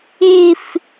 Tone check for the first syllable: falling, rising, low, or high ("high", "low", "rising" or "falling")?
falling